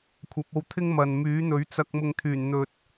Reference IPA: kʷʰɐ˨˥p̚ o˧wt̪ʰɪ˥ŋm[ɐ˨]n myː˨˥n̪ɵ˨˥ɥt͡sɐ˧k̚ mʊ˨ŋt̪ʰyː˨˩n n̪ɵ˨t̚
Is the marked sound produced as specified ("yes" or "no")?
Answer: yes